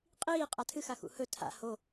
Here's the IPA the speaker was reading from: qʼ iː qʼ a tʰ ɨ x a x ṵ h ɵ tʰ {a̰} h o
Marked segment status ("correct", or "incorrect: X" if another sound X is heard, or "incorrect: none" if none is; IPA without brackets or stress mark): correct